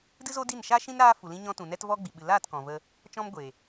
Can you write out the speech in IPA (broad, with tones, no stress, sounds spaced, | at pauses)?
d ɨ˦ z o˦ d i˦˨ n ʃ aː˦ ʃ ĩ˦ n ɾ aː˦ f u˨ l ĩ˧ ɲ ɔ̃˧ t ũ˨ n ɛ˦ t v ɔ˦ ɡ͡b i˨ ɓ ɨ˨ l aː˦˨ t k ɔ̃˨ v ə˧ | t͡ʃ ɔ̃˦ m ɡʷ e˨